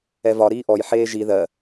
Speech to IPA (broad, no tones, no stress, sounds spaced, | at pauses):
ɛ v ɒ ɾ iː ʔ ɔ j ħ eː ʒ i ð ɜ